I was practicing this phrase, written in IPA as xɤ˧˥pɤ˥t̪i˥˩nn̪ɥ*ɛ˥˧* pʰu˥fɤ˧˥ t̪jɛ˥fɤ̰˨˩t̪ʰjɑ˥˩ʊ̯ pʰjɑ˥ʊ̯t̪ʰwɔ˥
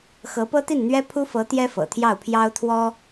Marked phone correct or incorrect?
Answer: incorrect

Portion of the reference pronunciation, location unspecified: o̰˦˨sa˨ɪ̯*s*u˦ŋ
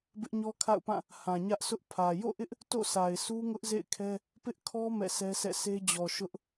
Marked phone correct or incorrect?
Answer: correct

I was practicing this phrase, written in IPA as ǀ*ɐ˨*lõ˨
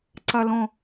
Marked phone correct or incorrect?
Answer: correct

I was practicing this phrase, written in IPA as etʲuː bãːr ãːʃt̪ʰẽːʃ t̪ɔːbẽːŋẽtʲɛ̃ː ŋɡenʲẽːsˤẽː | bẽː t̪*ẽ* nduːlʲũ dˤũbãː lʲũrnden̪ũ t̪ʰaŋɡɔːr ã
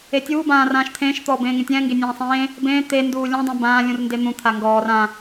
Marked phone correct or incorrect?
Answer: incorrect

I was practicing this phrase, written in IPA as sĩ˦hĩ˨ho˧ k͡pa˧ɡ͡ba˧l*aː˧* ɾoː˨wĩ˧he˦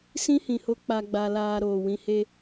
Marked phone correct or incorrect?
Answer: correct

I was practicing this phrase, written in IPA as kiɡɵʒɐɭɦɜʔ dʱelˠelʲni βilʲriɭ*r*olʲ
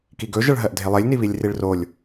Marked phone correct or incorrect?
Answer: correct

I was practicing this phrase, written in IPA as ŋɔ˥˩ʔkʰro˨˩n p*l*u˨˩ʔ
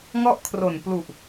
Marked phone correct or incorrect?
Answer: correct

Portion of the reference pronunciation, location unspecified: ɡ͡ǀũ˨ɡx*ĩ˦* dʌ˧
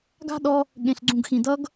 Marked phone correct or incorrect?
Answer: incorrect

